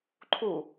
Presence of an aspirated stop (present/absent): present